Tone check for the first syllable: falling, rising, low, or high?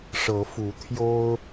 rising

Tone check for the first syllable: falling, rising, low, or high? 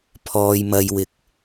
low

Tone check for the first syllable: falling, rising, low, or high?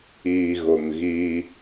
low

